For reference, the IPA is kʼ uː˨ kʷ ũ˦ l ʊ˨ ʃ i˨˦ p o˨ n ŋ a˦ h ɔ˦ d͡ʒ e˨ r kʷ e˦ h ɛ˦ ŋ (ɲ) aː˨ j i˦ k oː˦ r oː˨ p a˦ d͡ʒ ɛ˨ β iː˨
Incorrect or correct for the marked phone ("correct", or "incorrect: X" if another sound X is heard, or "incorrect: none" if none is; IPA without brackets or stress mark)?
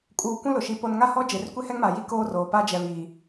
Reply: incorrect: m